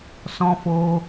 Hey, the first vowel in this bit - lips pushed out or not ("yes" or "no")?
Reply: yes